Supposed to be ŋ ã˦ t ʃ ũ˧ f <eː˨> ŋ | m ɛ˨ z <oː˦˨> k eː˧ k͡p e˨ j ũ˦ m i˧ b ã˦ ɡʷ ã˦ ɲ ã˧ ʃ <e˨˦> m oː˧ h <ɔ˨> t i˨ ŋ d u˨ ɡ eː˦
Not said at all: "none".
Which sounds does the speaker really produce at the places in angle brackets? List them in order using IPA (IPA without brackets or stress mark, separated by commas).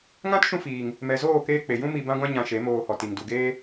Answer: iː˨, oː˦˨, e˨˦, ɔ˨